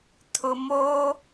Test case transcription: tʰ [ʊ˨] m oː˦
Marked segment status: correct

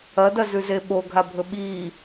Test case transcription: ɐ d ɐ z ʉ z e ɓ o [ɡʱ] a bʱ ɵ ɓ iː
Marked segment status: correct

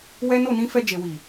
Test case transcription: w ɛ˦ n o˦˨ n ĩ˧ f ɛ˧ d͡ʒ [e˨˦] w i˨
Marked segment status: incorrect: e˨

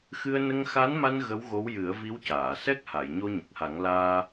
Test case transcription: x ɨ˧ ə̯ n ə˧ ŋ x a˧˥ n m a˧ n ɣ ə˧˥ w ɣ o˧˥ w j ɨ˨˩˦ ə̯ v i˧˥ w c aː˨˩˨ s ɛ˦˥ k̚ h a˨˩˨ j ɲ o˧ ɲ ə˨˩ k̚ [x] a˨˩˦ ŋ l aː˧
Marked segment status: incorrect: h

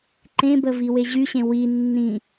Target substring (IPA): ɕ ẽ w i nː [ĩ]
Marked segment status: correct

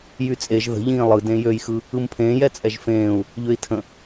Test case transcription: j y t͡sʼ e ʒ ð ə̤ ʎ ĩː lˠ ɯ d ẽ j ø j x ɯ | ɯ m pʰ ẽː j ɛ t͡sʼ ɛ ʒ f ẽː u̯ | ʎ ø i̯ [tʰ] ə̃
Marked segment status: correct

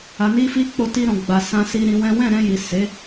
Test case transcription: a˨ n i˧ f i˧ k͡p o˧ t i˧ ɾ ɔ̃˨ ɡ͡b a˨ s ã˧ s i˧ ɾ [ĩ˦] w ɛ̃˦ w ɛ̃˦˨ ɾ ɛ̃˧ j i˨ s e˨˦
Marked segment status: incorrect: ĩ˧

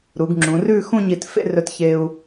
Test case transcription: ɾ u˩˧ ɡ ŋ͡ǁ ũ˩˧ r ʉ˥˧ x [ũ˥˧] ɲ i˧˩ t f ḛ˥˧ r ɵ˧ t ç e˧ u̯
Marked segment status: correct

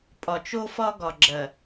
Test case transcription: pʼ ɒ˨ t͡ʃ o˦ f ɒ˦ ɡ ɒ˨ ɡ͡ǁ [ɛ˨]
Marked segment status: incorrect: ɜ˨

